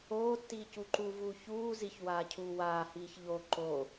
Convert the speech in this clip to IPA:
oː tː iː c u ǃ u v uː ç uː z i ç w aː cʰ uː w aː h iː ç ʎ o ǃ o

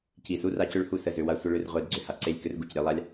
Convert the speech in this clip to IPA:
c i˨ s u˧ r a˧ c ʏ˧ ɭ h u˧ s ə˨ z ʏ˨ w a˧ sʷ ə˧ ɭ ʏ˧ r ʁʷ e˧ d ɡ͡ǀ ʏ˨ h a˧ ǀ e˦˨ lʲ k ʏ˦ r ɡ u˨ c ɾʲ e˨˦ lˠ a˦ lʲ

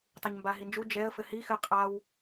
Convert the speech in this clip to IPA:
tˤ e ɲ m b a ɦ i n d͡ʒ u d͡ʒ ɛ ə̯ f ɘ h i x ɘ qʼ a w

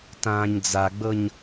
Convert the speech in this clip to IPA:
t ãː ɲ d͡z a ɡ͡b ɤ ɲ

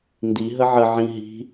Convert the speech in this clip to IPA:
n d i ɦ ə ʕ ə ʕ ĩ ɦ i̤

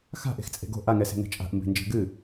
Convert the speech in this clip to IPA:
x a̤ ʔ e̤ x t͡sʼ e̤ ɡ o̤ ʔ a ŋ ɛ s e̤ ŋ ɛ̤ t͡ʃʼ a̤ ʔ m b e̤ n d͡ʒ e̤ ɡ ɨ

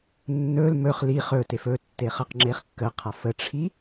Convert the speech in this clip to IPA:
nː ɵ l m ɵ χ l i χ ɵ t e f ɵ tː e χ ə q ŋ͡ǁ e χ kː ə qʰ a f ə ʈ͡ʂʰ i

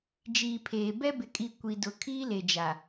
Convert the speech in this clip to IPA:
d͡ʒ iː˨ pʰ eː˨ b ɛ˦ b ɪ˨ kʼ i˨ kʷ i˨ d ʊ˨ kʰ iː˦ l e˨ d͡ʒ a˨

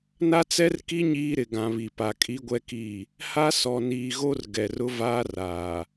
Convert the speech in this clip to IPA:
n a˦ t͡s ɛ˦ r k i˦ ɲ iː˦ ɾ ɪ˨ ɡ ã˨ β i˨ p a˨ kʼ i˦ ɡʷ ɛ˦ k iː˦˨ | h a˦ s ɔ˨ n iː˨ ɣ o˦ r ɡ ɛ˨ r ʊ˦ v aː˦ r aː˨

